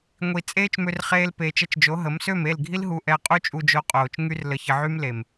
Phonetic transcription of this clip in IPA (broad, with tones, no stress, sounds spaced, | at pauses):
ŋʷ i˨ t͡sʼ eː˦ t͡ʃ m ø˧ r χ eː˧ l p eː˨ t͡ʃ ʌ˧ t͡ʃ d͡ʒ o˨˦ ɦ ə˨˦ m s ø˦˨ m e˦˨ l ɡʱ i˦ l ɦ u˧ ʔ ɛ˧ qʼ u˦ t͡ʃʼ u˧ d͡ʒ o˧ qʼ oː˨ t͡ʃ ŋ y˦ r l ə˧ ç ə˧ ʕ y˦ m l e˨ m